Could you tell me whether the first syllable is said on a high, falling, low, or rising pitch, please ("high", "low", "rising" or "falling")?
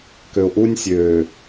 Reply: low